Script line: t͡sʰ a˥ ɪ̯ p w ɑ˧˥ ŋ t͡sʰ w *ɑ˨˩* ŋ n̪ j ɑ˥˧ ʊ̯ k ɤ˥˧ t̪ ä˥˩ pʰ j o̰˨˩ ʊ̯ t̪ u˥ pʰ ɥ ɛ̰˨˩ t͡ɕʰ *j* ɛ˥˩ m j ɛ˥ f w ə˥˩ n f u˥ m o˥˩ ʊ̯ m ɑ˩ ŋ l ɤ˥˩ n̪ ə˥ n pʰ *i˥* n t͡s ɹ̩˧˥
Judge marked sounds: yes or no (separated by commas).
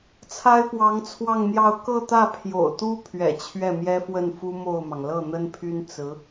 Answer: no, no, no